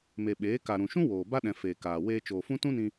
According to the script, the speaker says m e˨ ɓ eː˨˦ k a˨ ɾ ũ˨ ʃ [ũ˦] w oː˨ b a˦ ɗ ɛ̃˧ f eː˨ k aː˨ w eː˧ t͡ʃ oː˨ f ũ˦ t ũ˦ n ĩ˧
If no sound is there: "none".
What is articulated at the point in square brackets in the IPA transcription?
ũ˦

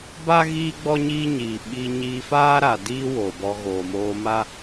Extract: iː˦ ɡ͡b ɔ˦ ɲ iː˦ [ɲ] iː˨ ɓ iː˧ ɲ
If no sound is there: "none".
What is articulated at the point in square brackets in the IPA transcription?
ɲ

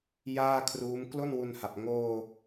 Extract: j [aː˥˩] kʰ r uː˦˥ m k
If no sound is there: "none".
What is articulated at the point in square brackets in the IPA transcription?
aː˥˩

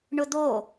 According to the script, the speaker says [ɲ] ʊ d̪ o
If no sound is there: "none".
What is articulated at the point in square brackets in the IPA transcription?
ɳ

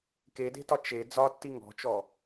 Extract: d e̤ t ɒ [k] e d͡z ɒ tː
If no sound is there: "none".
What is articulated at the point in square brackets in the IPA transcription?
t͡ʃ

